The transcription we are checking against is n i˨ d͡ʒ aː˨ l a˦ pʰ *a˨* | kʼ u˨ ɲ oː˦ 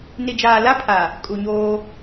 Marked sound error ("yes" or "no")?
no